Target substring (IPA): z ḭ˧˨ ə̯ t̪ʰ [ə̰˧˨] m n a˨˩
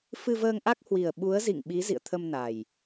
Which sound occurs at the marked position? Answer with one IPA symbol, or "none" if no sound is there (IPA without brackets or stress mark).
ə˧